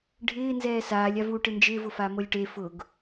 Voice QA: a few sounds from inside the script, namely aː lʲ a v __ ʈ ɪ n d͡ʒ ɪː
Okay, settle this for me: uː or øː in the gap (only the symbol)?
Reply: uː